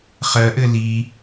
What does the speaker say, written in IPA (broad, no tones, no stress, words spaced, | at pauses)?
χɜʔɘ li